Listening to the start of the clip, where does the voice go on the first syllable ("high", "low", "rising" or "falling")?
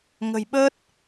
low